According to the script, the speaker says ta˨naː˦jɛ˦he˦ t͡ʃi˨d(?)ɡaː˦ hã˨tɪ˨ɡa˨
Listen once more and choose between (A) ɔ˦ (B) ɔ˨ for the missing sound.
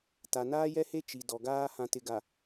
B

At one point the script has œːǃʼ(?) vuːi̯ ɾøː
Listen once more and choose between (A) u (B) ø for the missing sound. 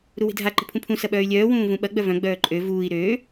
B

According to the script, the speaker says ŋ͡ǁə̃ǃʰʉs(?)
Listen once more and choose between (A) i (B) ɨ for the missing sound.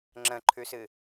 B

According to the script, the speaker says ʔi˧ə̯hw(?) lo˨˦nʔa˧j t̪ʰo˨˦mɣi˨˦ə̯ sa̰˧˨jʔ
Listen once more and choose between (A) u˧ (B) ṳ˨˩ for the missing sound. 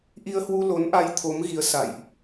A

